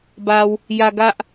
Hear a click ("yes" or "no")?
no